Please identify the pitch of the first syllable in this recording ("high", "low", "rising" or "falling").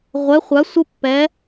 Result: rising